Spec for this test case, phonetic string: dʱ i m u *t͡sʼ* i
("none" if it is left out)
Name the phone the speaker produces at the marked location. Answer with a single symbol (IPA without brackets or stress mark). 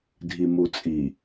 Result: t͡sʼ